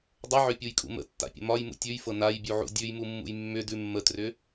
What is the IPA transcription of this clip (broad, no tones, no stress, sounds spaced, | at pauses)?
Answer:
dˤ ə ʕ ʏ pʲ u j kʼ ṵ m ə̰ tː a̰ pʲ ə̰ m ɒ j m ṵ tʲ ʉ j f ɤ n a j bʲ u ʕ ṵ dʲ ʉ j m u mː ṵ j mː ʏ d ʉ mː ə t r ʏ